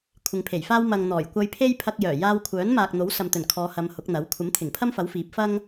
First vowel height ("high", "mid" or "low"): high